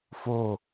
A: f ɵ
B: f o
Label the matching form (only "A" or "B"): B